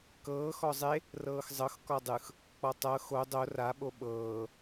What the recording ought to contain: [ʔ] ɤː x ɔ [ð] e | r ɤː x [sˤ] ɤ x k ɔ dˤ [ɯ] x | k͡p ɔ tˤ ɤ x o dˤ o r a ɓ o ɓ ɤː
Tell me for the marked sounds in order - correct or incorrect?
incorrect: k, incorrect: zˤ, incorrect: zˤ, correct

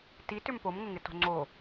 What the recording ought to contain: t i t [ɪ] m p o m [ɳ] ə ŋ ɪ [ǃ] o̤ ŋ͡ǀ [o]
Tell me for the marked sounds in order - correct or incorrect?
incorrect: ʏ, incorrect: ŋ, incorrect: t, correct

